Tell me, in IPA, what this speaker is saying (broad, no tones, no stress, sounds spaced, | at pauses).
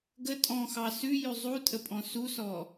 ɡ ə tʼ ɔ̃ x ɑ s ʉ j ʉ zˤ u tʼ ə pʼ ɔ̃ s u s ɔ